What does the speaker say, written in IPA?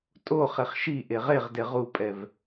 tʼ o χ e χ ʃ i ʔ e ʁ e ʁ d e ʁ u pʼ ɛ v

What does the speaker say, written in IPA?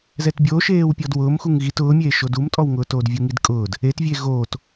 z ɛ t bʲ oː ʃ eː w pʲ ɔ d w ʊː m x u ŋ ɣ i t ʊː mʲ eː ʃ o d u m tʼ ɔ w ŋ ʊː t oː d vʲ u ŋ i d kʼ ʊː d | e t vʲ eː ɣ oː t

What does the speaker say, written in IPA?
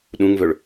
ɗ ũ ŋ v ɵ ɭ

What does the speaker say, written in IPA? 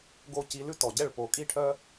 ɡ o˥˩ c i˧ l ʉ˥ t ɔ˩ ɟ ɛ˥˩ ɭ p o˩ kʼ i˥ ʈʰ œ˥

